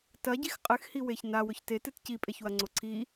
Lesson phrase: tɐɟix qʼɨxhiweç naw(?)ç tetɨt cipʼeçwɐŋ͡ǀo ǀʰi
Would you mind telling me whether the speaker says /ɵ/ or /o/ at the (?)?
ɵ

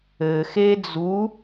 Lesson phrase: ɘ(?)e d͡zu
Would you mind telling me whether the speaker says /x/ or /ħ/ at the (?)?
x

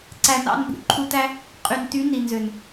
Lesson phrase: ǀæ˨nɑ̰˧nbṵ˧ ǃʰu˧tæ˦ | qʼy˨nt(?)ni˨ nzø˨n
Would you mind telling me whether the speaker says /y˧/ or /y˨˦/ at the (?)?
y˨˦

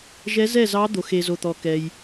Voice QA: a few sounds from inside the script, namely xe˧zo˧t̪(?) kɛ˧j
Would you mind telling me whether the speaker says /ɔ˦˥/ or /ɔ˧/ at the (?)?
ɔ˧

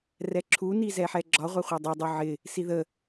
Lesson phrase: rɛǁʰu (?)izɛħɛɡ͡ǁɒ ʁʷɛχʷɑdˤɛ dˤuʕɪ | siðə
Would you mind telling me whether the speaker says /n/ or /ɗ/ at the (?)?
n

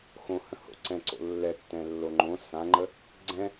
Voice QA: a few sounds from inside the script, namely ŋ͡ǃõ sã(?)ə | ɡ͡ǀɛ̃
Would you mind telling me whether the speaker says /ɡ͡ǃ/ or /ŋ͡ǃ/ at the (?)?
ŋ͡ǃ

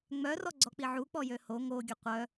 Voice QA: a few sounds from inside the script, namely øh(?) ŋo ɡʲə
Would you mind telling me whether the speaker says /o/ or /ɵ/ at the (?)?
o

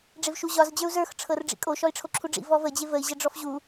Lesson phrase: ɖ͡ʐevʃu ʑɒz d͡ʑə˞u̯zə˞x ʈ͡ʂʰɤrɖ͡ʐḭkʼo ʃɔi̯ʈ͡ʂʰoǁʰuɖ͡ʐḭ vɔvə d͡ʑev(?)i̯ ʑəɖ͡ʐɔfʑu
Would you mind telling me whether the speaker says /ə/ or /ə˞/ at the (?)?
ə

